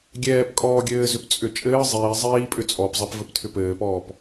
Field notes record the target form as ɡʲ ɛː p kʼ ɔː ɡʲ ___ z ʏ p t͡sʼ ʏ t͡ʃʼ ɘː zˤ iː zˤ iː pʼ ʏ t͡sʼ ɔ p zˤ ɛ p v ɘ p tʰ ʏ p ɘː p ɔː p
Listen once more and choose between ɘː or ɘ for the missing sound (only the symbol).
ɘː